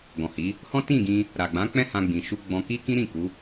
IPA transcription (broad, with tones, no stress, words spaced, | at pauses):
ɡɔ̃˨hi˨˦ | hɔ̃˦ tĩ˦˨ɡĩ˧ | ɾa˨ɡ͡bã˨˦k͡pɛ̃˦ hã˧ɡ͡bĩ˨ ʃu˧ɡ͡bɔ̃˧ ki˦kĩ˦ɾĩ˦˨ ku˨˦